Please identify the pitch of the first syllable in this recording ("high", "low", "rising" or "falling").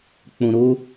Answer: low